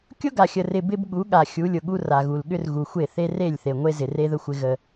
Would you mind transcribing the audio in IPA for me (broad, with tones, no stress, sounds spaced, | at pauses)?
kʲ ʊ˦ ɡ a˨ xʲ ə˨ r ɪ˨ b ɪ˦ b ɠ u˨˦ ɠ a˨ xʲ u˨˦ lʲ ʊ˨ ɠ u˦ r a˨ ɣ u˨ l ɠ ʏ˦ r ɣ u˨ xʷ e˦˨ θ e˦ r e˦˨ lʲ θ e˨ ŋʷ e˦ z ɪ˨ r e˦ ð ə˦ xʷ ɪ˦ ɣ ə˦